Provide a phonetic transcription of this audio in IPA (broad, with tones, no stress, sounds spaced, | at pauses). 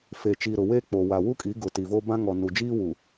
f e˨ t͡ʃ iː˨ ɾ ʊ˨ w eː˦ k͡p o˨ w a˨ w u˦ kʼ i˨˦ ɡ ʊ˨ t i˨ v o˦ b ã˦ ŋ ɔ˨ n u˨ d͡ʒ iː˦ w u˨